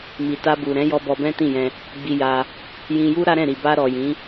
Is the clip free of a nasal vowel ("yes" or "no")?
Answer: no